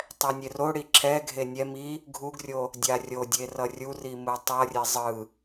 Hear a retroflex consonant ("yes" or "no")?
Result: yes